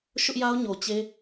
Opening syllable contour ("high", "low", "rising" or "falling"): high